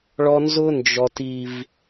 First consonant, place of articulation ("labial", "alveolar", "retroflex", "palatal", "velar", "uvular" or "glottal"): retroflex